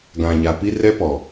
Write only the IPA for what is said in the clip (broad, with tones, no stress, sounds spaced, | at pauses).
ɡ ã˨ ɲ a˨ p i˦ r ɛ˦ p ɔ˨